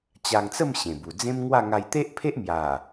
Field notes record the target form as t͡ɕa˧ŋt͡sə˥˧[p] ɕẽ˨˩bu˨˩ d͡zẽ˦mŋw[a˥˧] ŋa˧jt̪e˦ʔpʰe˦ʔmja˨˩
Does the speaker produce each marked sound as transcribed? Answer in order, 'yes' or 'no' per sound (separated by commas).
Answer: no, yes